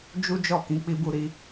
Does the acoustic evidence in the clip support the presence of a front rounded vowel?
no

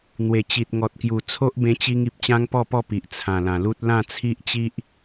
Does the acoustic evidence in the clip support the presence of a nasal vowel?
yes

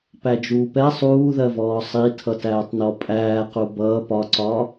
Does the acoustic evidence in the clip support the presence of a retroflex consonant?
no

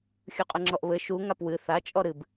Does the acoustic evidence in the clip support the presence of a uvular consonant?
yes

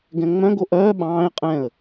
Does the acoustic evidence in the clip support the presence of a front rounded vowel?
yes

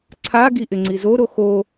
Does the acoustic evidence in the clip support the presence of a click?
yes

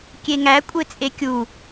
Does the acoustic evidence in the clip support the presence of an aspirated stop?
no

